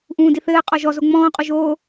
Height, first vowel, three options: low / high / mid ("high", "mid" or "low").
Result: high